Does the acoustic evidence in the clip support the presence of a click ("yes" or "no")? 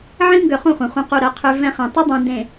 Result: no